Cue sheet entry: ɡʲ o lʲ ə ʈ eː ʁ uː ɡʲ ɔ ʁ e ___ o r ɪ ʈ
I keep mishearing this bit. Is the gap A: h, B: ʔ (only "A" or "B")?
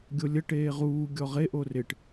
B